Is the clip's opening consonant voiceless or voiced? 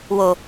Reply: voiced